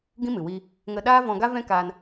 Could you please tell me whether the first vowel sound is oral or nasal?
nasal